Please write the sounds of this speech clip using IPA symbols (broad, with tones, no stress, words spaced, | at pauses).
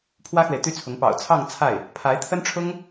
pʰwä˥xwe˨ɪ̯t̪y˥t͡sʰʊ˧˥ŋ pɑ̰˨˩ʊ̯t͡sʰɑ˥˧ŋ t͡sʰa˥˩ɪ̯ | pʰa˧˥ɪ̯t̪ʰə˥nʈ͡ʂʰʊ˥ŋ